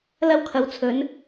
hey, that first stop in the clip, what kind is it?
aspirated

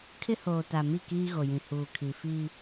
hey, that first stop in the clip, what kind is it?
aspirated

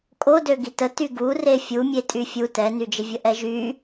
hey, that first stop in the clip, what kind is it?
ejective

